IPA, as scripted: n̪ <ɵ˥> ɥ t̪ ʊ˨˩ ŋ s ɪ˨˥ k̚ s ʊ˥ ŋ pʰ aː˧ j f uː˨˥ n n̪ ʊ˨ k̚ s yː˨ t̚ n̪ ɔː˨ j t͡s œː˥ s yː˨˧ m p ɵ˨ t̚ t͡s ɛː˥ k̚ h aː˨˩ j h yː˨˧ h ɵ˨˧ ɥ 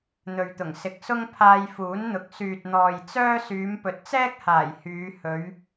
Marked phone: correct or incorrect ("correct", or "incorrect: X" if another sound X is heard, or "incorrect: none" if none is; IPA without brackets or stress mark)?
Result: incorrect: ɵ˨